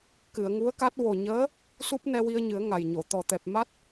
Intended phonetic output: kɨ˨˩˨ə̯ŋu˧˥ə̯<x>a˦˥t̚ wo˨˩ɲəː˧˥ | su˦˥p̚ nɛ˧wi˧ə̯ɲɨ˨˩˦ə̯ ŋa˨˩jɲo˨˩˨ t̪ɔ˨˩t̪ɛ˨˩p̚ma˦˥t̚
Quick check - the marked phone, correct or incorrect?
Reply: incorrect